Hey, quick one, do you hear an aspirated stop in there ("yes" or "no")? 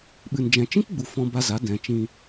no